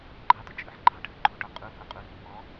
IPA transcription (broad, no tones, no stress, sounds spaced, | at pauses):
ɡ͡ǃ ɑ t ə t͡ʃʼ ɯ ħ ɡ͡ǃ ɑ ʈʰ ə ǃʰ u ʈ ɔ qʼ u h u qʼ u r u ʔ ɔ